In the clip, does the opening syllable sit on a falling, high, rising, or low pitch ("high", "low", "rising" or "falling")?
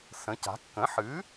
rising